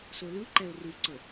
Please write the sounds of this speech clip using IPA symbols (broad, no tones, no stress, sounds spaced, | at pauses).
s o l ɯ ǃ ɛ ʊ̯ r u ǀ ɤ